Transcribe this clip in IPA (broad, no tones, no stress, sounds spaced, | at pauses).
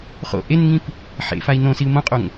χ o̰ ʔ e n ŋ ĩ p | ħ ḛ f a i̯ n õ s i u̯ m õ qʼ o ŋ